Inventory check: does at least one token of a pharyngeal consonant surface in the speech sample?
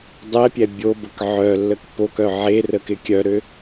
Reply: yes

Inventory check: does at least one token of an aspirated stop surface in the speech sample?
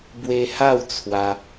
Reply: yes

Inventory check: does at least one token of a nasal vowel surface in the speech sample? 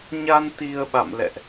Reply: no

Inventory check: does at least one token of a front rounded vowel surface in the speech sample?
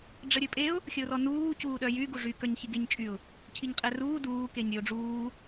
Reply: yes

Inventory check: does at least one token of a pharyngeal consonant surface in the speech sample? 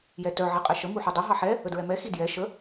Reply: yes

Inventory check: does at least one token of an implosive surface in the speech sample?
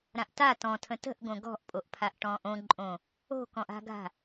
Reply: no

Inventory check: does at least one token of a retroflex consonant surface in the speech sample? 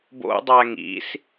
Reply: no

